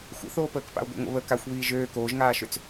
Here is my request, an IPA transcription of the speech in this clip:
xʷ ə̰ θ oː p əː k p a̰ o̯ ɡʷ ḭ ŋʷ ə̰ β ə k a xʷ β iː ʒ øː k oː ʒ ŋ aː ʃ ø t͡s

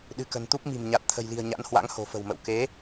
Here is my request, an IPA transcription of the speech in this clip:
ɗ ɨ̤˨˩ k ə̤˨˩ n t̪ u˦˥ p̚ m i̤˨˩ m ɲ a˨˩ t̚ t̪ʰ ə̤˨˩ j l i̤˨˩ ə̯ ɲ a̰˧˥ n h w a̰˧˥ ŋ h o̤˨˩ f ə̤˨˩ w m ə̰˧˨ w k e˨˦

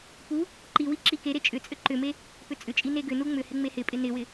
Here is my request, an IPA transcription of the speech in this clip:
p u | ǃ i w i ǁ i k e ɾ e t͡ʃʼ ʏ t͡sʼ ʏ ǃ ʏ m e | p ʏ t͡sʼ ʏ t͡ʃʼ i n e ɡ ʏ n u ŋ͡m ʏ h ɪ ŋ͡m e h ɪ pʼ ɪ n ɪ w ɪ

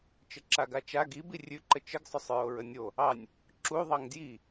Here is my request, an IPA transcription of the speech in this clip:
t͡ʃ ə ǁ a ɡ a t͡ʃ a ɡ i b i rʲ ʉ ǃ ə t͡ʃ ə ɡ sˤ ʏ sˤ ɹ o ɹ ə nʲ o | ɑ nʲ | ǁ u ðˤ ɑ ŋ d j i

